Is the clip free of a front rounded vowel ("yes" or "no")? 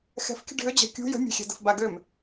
no